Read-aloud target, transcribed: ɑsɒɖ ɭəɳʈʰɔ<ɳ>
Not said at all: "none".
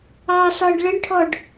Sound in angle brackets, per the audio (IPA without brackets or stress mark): ɖ